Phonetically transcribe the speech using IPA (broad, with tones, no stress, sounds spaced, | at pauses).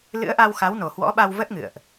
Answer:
l ɨ̰˧˥ ə̯ ʔ a˧ w x a˨˦ w n o˨˩ h w ɔ̰˧˥ ɓ a˧ w v ə˦˥ t̚ ŋ ɨ̰˧˨ ə̯ ʔ